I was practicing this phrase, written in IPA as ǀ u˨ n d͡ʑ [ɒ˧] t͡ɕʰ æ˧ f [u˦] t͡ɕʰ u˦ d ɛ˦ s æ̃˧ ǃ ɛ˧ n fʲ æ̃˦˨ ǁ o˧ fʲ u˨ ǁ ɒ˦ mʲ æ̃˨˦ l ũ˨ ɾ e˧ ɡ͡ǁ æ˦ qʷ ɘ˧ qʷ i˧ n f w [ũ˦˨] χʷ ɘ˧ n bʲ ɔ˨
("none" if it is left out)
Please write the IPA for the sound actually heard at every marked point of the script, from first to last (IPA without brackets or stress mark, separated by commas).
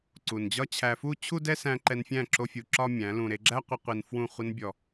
ɒ˦, u˦, ũ˦˨